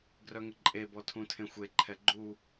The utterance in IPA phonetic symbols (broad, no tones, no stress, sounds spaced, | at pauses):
ɡ r œ ŋ ə ǃʼ e b ɔ tʰ ũ tʰ ẽ xʷ e ǃʰ ɛ ɡ͡ǃ u